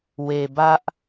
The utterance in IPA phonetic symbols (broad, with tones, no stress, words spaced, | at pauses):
we˨ bä˦ʔ